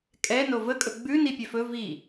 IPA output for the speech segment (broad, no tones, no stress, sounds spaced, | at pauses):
kʼ ɛ n o v ə kʼ ɵ ɡ͡b ʉ n i pʲ ɛ f ɵ v i